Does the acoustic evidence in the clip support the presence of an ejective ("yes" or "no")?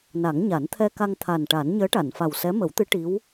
no